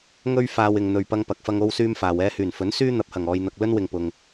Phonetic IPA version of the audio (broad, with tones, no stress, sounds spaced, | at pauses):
ŋ ɵ˥ ɥ f aː˧ w ɪ˨ ŋ n̪ ɵ˨ ɥ p ɐ˧ ŋ p ɐ˨ k̚ f ɐ˧ ŋ o˥ w s yː˥ m f aː˨ w ɛː˧ h yː˨˩ n f ɵ˨˥ n s yː˥ n̪ ɐ˨ p̚ h ɐ˨˩ ŋ ɔː˨ j n̪ ɐ˨ k̚ l ɵ˥ n w ɪ˨ ŋ p ʊ˨ ŋ